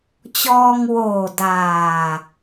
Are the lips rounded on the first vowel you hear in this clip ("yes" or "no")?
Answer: yes